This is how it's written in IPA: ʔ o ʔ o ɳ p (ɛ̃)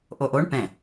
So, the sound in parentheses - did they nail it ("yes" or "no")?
yes